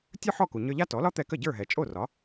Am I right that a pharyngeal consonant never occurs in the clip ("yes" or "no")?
no